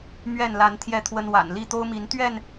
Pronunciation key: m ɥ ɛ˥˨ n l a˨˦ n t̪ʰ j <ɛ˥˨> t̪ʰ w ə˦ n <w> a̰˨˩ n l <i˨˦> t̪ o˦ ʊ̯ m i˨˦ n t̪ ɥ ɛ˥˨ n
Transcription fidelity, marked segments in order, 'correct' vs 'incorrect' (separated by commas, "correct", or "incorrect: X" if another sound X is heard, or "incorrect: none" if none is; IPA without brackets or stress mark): correct, correct, incorrect: i˥˨